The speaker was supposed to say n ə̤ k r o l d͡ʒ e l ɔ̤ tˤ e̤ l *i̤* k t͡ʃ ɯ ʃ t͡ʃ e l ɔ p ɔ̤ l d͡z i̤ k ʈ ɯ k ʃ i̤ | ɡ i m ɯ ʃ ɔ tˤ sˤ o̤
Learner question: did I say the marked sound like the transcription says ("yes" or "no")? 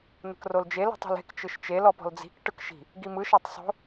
no